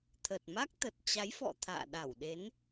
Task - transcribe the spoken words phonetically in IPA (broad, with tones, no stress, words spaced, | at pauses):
t̪ʰə˨˩t̚ma˦˥k̚ t̪ə˨˩t̚t͡ɕa˨˦jfɔ̰˧˨ t̪ʰa̰ː˧˨ɗa˧˩wɗe˨˦n